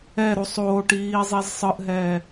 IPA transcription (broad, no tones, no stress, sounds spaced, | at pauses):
ɛ ɾ u sˤ oː ʈ iː zˤ i z sˤ ɯ ʔ ɦ ɛː